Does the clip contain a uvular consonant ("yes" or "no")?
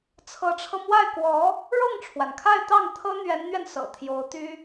no